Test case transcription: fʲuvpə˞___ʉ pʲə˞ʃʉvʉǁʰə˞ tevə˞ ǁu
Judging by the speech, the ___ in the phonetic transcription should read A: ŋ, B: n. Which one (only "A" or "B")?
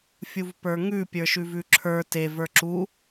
A